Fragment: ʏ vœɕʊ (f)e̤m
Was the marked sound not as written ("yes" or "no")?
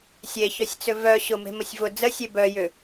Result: yes